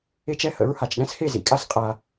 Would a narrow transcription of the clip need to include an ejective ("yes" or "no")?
yes